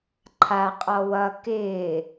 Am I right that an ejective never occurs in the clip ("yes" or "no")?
no